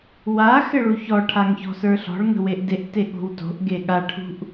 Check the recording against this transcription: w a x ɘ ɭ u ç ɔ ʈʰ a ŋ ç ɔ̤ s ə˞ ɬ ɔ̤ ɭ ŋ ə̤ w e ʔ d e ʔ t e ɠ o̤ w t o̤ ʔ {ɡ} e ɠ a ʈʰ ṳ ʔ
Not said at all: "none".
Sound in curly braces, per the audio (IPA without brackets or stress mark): ɡ